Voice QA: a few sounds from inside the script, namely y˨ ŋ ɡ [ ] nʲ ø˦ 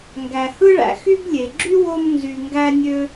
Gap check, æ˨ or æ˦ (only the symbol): æ˦